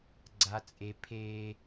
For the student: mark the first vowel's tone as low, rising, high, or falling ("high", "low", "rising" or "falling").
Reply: high